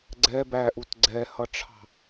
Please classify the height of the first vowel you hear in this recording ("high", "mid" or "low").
mid